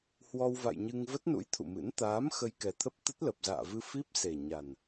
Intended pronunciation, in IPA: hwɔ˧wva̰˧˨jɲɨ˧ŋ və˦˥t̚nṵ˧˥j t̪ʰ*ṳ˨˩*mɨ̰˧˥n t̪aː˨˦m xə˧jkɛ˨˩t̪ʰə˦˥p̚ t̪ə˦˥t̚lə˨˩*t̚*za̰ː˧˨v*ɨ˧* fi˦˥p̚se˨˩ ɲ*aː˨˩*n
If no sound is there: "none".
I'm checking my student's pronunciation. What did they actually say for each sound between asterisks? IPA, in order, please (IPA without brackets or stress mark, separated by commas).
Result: ṵ˧˨, p̚, ɨ˧, a˨˩